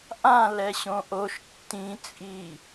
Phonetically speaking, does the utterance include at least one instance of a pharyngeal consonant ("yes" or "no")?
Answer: no